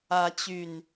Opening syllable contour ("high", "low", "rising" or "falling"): rising